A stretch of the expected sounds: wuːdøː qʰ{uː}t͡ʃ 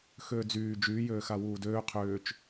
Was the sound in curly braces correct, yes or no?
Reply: no